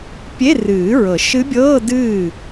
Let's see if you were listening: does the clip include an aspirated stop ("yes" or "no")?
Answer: no